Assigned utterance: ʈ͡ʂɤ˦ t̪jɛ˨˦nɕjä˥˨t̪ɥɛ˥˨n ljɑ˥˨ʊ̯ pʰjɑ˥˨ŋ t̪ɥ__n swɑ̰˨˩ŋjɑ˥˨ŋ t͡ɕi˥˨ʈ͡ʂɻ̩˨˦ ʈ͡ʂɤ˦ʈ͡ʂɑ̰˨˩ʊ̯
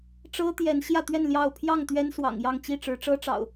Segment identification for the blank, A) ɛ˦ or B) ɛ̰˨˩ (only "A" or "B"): A